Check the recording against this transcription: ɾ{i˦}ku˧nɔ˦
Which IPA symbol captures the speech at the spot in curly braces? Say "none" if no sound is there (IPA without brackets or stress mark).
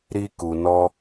i˦